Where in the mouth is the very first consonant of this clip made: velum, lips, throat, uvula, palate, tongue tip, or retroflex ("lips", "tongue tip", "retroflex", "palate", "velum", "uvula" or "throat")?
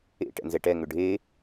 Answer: retroflex